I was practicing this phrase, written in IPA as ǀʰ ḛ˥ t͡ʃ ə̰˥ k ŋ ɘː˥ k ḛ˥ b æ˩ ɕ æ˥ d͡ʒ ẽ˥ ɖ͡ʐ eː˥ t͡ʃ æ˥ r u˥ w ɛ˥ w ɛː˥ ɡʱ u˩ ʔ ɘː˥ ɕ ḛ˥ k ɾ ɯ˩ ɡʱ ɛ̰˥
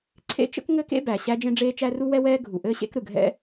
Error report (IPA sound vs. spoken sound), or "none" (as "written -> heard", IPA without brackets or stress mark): none